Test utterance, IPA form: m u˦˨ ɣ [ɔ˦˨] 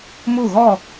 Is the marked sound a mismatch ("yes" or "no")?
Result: no